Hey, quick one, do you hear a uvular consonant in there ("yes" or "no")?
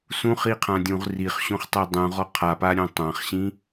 yes